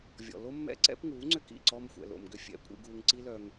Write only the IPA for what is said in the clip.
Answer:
vʲ ɔ̰˨ l o˦ mː ɛ̰˦ ǀ ɛ̰˦ p ŋ uː˨˦ ŋ͡ǀ ʏ˦ k ḭ˦˨ ǀ ɔ˧ m xʷ ɛ̰˨ l o̰˨ m ɡ ʏ˧ fʲ ɛ̰˨˦ kʷʼ ḭ˧ ɡ uː˧ ŋ ǀ i˦ l œ˧ ŋ

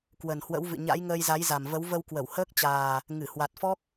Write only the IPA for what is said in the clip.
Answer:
k w ə˨˩ n h w ə̰˧˥ w v ɨ̰˧˨ ɲ a̰˧˥ j ŋ əː˧ j z a˨˦ j z a˨˩ m v ə˨˦ w v ə˧ w k w ə˧˩ w h əː˦˥ k̚ t͡ɕ aː˨˩ | ŋ ɨ˧˩ h w a˨˩ t̚ f ɔ˦˥ k̚

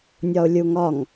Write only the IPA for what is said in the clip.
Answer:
nʲ ɒ ʊ̯ lʲ u ŋ ɒ ŋ

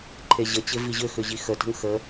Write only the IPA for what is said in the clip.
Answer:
ǃʰ e ʑ ə t͡ɕ ɪ v i ʑ ʏ x ʏ ʑ i x ə t ə̤ ŋ x ə

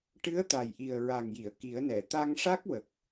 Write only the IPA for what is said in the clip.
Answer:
ʈ ɨ˧˥ ə̯ t̪ a˨˩ j ʔ i˨˩ ə̯ ɹ a˨˩ ŋ j i˨˩˨ ə̯ k i˨˩˦ ə̯ n ɛ˨˩˨ t̪ a˧ ŋ ʂ a˦˥ k̚ w ə˨˩ k̚

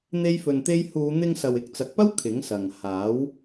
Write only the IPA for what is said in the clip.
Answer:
n̪ e˥ j f ɵ˧ n t̪ e˥ j h uː˨˧ n̪ ɪ˧ ŋ s ɐ˨ w ɪ˧ k̚ t͡s ɐ˨ k̚ p ɐ˥ w kʰ ɪ˨˥ ŋ s ɐ˨ ŋ h aː˨˥ w

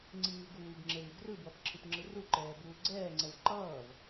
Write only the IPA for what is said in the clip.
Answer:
ŋ͡ǀ iː v ɡ uː ɡ ŋ͡ǁ e l i ɡ r ɯ b w ʌ p ǁʰ ɯ p ŋ͡ǁ ɯ r u ǃ ɛː b uː ɡ͡ǀ ɛː ŋ͡ǀ ɛ v ǃ ʌː v

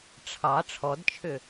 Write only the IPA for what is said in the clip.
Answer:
ʈ͡ʂʰ ɑ ʈ͡ʂʰ ɔ d t͡ʃʰ ʏ

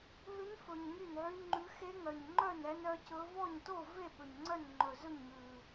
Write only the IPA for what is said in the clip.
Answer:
ɦ ʉ˦˥ n f ɵ˧ ɲ ŋ y˥˧ n ʕ y˦˥ ŋ͡ǃ ʉ˦˥ x e˦˥ ŋ œ˧ ɲ ŋ͡ǃ œ˥˧ n ɛ˦˥ n œ˦˥ c ɵ˦˥ v ɔ˥˧ ɲ t o˥˧ v e˥˧ ɓ ɵ˧ ɲ ŋ͡ǀ œ˥˧ n ŋ͡ǃ ɵ˧ z ɵ˥˧ ɲ ŋ ʉ˧

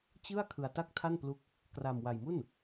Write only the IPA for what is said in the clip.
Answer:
t͡ɕ ɯ˥˩ a̯ kʰ ɯ˧ a̯ t a˥˩ k̚ tʰ a˥˩ n p l u˦˥ k̚ | k r a˧ m w a˧ j m u˥˩ n

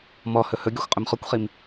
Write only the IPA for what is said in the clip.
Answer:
m ɔ h ɵ h ɵ ɡʲ ɔ xʷ qʼ ɵ m χ ɔ kʷ χ i m

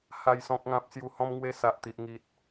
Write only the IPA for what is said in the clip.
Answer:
h a˨˩ j s ɔ̃˨ k̚ ŋ ã˨ p̚ s j u˧ h ɔ̃˦ m ŋ w e˦ s a˨ ʔ t̪ i˨ ʔ ŋ i˨ t̚

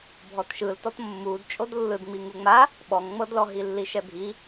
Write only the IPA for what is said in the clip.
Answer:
bʱ ɔ t ʃ ɯ l t ɔ t mː u d t͡ʃʼ o d lː ɯ d ŋ͡m i ŋ u ŋ͡m a | ɓ ɔ ŋ ŋ͡m ɤ d l ɔ ɦ i lː i ʃ ɛ bʱ i

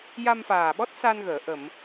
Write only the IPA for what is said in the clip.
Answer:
j a˧ m f aː˨˩ ɓ ɔ˦˥ t̚ s a˧ n ɣ əː˨˩˨ ʔ ə˨˩˨ m

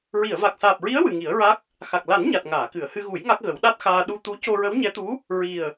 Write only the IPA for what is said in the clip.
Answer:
ɹ i˨˩˨ ə̯ v a˨˩ k̚ s aː˨˩ p̚ ɹ i˧˥ ə̯ w ɨ˨˩ ŋ i˨˩˦ ə̯ ɹ a˦˥ k̚ | x a˨˩ k̚ l a˨˩˦ n ɲ a˨˩ t̚ ŋ aː˨˩˨ k ɨ˨˩˨ ə̯ h ɨ˧ ɣ u˨˩˦ j ŋ a˦˥ k̚ ɣ ə˨˩˦ w ɗ a˦˥ t̚ x aː˧ ɗ u˧ t̪ u˧˥ c o˧ ɹ ə˧˥ w ɲ ɛ˧˥ t̪ u˧˥ | ɹ i˨˩ ə̯

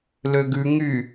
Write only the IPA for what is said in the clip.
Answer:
l ø ɡ ʉ ŋ y

